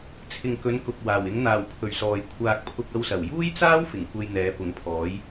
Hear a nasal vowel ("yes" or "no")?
no